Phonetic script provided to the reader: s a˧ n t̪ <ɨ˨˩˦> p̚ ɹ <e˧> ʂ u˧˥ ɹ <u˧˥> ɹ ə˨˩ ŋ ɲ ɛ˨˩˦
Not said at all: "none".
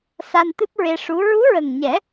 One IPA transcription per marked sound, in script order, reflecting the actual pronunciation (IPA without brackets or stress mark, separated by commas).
ɨ˦˥, e˧, u˧˥